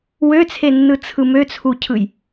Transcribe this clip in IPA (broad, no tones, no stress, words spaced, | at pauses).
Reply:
wøt͡sʰenːɯ t͡sʰɯmøt͡sʰucʰɯj